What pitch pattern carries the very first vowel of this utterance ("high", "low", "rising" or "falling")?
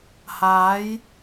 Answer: rising